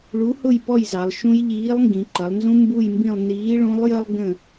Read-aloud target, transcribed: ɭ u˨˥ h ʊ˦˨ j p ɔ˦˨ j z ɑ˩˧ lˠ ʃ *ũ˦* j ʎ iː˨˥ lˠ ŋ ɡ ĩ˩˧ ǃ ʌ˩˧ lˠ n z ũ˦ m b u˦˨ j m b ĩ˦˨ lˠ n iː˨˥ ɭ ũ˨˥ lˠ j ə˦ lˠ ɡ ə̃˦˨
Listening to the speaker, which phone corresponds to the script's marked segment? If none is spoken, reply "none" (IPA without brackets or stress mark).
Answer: ũ˦